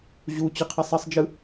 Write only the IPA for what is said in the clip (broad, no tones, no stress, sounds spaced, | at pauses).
ʑ u t͡ɕ ɯ qʰ ʌ sˤ ʌ sˤ d͡ʒ ɯ